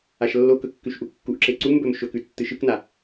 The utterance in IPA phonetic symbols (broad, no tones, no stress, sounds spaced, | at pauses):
a ʃ lː o k ɵ kː ʉ ʃ ʔ u kː u ʔ ǁ e ǀ u m b ɵ m ʃ ɵ k ʉ tː ɨ ʃ ɨ k n a